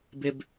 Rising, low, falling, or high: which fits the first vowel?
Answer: high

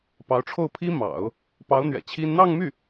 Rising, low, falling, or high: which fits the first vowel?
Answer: rising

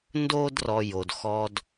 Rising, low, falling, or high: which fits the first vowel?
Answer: high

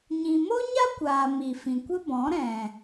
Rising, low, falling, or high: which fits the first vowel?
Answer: low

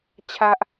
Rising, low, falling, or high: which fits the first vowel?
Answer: high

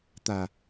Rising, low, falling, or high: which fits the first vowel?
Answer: low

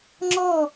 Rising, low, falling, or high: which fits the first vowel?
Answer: falling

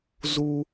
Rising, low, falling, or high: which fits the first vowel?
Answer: high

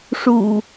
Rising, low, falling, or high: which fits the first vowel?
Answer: low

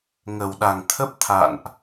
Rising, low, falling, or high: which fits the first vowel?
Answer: low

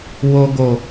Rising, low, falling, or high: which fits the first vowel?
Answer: low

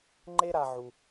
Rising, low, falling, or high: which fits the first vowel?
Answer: high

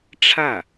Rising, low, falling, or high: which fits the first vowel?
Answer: falling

